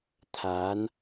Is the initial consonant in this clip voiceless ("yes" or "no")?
yes